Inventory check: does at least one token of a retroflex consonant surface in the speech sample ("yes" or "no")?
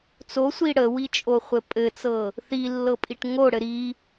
yes